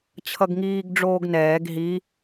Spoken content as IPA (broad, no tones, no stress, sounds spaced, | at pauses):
t͡ɕʰ ʌ ɡ ŋ iː ɡ ɖ͡ʐ oː ɡ n ɛː ɡ ɦ i